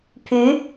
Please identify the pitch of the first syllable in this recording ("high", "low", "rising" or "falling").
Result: rising